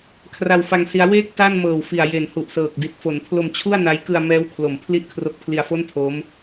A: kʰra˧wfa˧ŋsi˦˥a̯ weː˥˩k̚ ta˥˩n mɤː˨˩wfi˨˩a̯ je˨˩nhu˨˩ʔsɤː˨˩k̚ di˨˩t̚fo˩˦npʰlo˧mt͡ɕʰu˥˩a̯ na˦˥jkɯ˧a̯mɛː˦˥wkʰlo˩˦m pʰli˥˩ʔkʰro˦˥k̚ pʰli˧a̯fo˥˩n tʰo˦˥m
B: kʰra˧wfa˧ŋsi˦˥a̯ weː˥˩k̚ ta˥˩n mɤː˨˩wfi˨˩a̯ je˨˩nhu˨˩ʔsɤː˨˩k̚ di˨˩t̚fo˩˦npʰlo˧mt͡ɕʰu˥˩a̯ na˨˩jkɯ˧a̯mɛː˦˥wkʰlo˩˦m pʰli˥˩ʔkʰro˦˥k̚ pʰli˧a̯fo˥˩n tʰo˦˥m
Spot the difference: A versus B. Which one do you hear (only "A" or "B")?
A